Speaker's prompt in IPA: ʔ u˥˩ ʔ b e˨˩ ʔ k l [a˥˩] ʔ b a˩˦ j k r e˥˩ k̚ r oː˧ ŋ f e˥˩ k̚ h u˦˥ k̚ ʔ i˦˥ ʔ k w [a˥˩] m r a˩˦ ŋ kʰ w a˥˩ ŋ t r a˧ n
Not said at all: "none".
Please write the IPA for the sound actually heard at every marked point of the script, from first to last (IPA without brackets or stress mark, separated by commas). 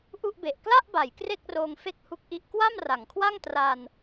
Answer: a˥˩, a˥˩